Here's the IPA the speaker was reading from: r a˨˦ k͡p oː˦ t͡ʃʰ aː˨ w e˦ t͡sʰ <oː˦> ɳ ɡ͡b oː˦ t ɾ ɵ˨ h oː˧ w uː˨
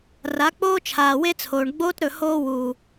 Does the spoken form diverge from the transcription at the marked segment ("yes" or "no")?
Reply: yes